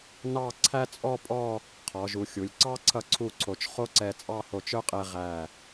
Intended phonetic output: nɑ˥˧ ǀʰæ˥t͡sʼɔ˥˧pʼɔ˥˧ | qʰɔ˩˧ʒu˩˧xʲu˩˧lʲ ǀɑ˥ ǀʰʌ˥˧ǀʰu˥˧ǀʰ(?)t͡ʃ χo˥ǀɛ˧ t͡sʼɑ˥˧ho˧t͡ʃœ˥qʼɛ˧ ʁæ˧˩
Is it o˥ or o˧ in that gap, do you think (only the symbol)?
o˧